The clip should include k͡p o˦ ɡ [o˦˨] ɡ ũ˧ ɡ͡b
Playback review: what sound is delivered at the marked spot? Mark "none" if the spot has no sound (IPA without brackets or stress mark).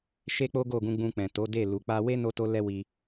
o˦˨